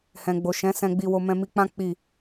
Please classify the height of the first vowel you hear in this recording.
mid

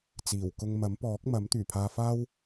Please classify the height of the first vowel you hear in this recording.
high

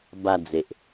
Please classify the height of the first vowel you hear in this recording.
low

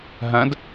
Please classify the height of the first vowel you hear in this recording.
low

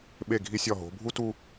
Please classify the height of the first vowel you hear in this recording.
mid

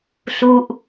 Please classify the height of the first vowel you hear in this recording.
high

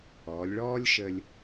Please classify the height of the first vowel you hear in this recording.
mid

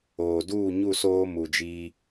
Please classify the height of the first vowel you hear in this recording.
mid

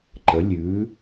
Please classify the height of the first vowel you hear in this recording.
mid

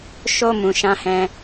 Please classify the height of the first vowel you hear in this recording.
mid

